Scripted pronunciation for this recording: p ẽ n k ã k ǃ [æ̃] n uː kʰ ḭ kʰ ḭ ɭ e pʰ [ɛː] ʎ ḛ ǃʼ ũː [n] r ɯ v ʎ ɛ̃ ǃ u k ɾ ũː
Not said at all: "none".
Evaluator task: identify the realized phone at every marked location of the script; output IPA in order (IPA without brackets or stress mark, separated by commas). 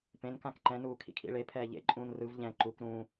ɛ̃, ɛː, n